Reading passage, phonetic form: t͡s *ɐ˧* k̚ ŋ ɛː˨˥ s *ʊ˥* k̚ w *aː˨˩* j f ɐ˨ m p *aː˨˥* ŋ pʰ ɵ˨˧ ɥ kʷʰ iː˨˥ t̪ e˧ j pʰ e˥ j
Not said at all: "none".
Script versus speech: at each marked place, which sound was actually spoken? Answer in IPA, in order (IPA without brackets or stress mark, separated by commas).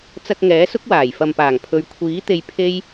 ɐ˧, ʊ˥, aː˨˩, aː˨˩